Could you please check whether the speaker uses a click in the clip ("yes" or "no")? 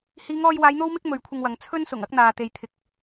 no